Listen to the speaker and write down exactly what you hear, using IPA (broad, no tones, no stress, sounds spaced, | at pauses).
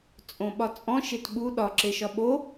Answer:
t͡sʼ õ ɓ ɒ t͡sʼ ɔ̃ ʃ e t ɓ u ɗ ɒ ǁ e ʃ ɒ ɓ o